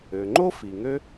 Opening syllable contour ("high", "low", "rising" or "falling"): low